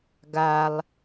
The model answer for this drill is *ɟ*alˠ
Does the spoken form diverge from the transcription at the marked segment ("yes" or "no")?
yes